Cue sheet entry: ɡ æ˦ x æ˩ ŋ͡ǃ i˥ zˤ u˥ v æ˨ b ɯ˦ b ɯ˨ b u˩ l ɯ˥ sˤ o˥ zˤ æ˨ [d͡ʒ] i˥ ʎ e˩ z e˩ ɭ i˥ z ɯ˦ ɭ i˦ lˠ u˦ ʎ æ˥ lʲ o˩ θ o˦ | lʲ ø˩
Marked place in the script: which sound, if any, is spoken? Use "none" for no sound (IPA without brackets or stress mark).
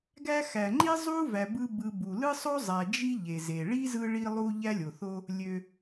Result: d͡ʒ